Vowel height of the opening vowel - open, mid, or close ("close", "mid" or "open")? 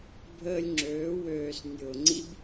mid